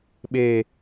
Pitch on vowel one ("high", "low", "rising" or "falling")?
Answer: high